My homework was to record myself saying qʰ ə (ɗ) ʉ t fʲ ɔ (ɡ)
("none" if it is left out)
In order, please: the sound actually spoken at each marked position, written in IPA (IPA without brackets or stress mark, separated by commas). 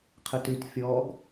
t, ɡ